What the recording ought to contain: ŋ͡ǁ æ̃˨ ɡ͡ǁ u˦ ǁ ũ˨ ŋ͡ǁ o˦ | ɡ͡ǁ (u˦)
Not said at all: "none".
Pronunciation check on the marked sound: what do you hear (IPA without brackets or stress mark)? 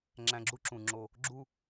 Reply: u˦